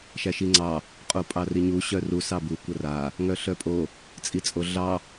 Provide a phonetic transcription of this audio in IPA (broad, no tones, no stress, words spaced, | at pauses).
ʃæʃiŋ͡ǀɑ | qʼopʼɑriɲu ɕœru sɑbu kʷɐra | ŋœɬœpʼo | t͡sʼit͡sʼoɮɑ